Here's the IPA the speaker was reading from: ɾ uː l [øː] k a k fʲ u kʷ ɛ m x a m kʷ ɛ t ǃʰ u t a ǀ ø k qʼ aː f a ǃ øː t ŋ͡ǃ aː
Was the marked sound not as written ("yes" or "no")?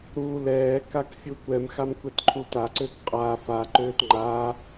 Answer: yes